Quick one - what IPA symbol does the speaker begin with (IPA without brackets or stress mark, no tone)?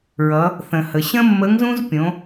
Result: ɹ